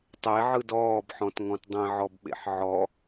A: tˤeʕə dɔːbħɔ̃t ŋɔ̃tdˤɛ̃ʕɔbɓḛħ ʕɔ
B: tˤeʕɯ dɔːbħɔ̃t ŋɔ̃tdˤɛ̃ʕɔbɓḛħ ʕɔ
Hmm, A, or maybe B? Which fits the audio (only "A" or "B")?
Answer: B